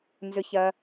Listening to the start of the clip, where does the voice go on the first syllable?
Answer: high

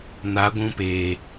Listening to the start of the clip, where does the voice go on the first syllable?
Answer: rising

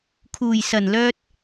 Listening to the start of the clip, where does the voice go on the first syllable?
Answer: low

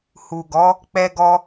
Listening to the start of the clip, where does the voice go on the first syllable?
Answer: low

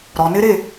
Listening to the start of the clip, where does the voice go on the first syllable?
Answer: low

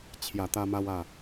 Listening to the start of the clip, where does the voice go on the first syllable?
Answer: low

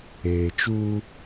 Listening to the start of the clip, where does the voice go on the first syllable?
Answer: low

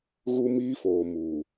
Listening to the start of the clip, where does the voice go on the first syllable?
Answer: high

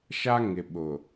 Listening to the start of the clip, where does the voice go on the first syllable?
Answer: high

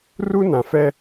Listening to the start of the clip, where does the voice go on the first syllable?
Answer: high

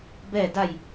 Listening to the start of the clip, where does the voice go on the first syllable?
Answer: falling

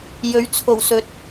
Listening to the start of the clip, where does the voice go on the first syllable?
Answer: rising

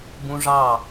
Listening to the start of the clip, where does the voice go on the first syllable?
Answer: high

